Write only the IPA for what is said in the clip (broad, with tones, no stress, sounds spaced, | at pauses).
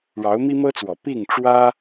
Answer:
ɻ ɑ˧˥ ʊ̯ m i˥ m ɤ˥ t͡s w ɔ˨˩ p i˥˩ ŋ ʈ͡ʂ w ä˥